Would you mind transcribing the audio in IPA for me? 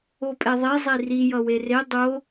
opʼeðˤe zˤiri jʌwere dˤo

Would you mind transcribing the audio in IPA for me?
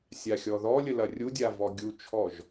sʲaxʲɔðɔlʲə lɐrʲudʲa vɔɡʲut͡ʃʰɔʒ

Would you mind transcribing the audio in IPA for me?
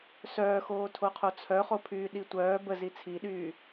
sœːxoːtʰoqʰo t͡sʰœχopʰyː ɗitʷœː bə zit͡sʰiɗyː

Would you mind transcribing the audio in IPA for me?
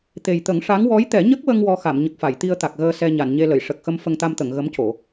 t̪e˨˩jt̪ə˨˩˦ŋʂa˧˥ŋ wɔ˧˥jt̪ɛ˨˩˦ɲə˦˥k̚wə˧ŋ wɔ˧xa˨˩˨mɲə˨˩k̚fa˨˩˨j t̪i˧ə̯t̪a˨˩k̚ɣəː˧ sɛ˧ ɲa˨˩˨nɲe˧ lə˨˩˨jʂə˨˩k̚xə˧m fə˧ŋt̪a˧mt̪ə˨˩˨ŋ ɣə˧˥mco˨˩˨

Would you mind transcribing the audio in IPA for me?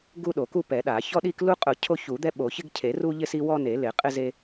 ɡu˦ɗo˨˩˦ku˦ pɛ˨˩˦ɗa˨˩˦ çɔ˦ ɗi˦k lu˦qʼʊ˨˩˦ cʰo˦çu˨˩˦d̪ɛ˦ ɓo˨˩˦ çɪ˦ɡcʰe˨˩˦ru˦ʎɪ˦ si˦wɔ˦ne˨˩˦ lɪ˨˩˦qʼɪ˦ze˦

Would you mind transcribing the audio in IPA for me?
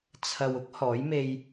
t͡sʰɐ˨w ʊ˥k̚ hɔː˨˥jme˧j

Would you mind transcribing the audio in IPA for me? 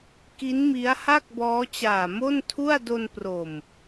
ki˦˥nmi˦˥a̯ha˥˩k̚ bɔː˦˥t͡ɕaː˨˩ mo˥˩ntʰu˥˩a̯ do˧npro˨˩m

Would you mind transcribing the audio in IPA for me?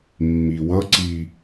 mːiwʌǀi

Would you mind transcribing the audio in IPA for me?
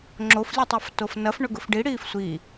ŋ͡ǁoflʲutˤuftof nɐf ɳʊɡʊfɖiɽiːf sʷi

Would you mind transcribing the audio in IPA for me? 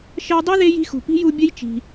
ʃɜ˦dˤu˥ ðe˦ji̤˦ xṳ˨pi̤˥ju˦ bʲə˥jt͡ʃi̤˨

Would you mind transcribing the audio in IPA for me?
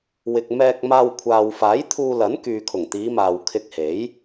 wɪ˨k̚mɛː˧k̚maː˧w kʷʰaː˨wfaː˨˥jt̪ʰuː˧lɐ˨˥n kyː˨kʰʊ˨˩ŋt̪iː˨˧maː˨w kʰɪ˧k̚he˨˥j

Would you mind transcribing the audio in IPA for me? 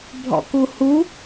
bʱɔ̰kuhu

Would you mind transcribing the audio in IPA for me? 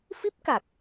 fi˦˥p̚ka˨˩k̚

